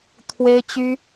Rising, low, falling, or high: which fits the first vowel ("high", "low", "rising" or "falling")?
high